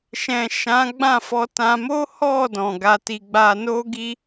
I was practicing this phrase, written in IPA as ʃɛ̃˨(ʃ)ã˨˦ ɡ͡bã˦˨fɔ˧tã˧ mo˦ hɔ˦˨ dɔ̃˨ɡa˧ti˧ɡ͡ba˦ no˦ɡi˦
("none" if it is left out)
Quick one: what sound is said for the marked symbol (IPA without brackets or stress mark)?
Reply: ʃ